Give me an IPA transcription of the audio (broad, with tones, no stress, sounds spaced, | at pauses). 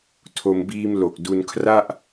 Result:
tʰ o˧ m b iː˧ m l o˨˩ k̚ d u˧ n kʰ r a˥˩ ʔ